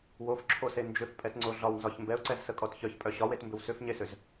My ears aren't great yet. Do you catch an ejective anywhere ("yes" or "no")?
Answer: yes